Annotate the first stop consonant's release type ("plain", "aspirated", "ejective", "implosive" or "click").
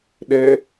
implosive